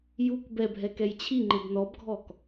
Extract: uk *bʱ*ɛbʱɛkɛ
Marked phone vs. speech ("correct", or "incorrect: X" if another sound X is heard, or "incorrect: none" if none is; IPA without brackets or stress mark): incorrect: b